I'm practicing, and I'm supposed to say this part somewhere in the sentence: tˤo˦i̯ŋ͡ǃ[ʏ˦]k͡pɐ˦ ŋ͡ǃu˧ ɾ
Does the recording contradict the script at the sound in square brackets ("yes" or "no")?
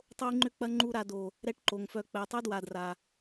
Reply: no